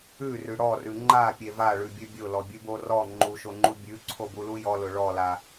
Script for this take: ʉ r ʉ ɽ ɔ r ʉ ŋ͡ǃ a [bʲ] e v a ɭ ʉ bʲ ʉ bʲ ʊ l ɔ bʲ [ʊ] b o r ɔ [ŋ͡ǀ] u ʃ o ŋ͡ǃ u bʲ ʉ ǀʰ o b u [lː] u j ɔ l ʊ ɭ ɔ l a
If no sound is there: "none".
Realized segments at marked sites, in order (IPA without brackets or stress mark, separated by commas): pʲ, ʉ, ŋ͡ǃ, l